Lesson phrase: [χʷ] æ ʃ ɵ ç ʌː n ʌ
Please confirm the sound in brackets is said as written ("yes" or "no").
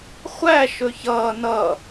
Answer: yes